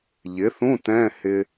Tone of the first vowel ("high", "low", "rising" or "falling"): rising